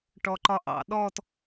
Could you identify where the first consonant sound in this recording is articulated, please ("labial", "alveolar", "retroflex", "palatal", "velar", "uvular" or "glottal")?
retroflex